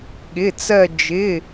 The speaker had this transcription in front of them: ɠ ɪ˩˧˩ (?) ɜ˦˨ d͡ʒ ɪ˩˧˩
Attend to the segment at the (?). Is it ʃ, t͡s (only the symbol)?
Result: t͡s